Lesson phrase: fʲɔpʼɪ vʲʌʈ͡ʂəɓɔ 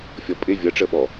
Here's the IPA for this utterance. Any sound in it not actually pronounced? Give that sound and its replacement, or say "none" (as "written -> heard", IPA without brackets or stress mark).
none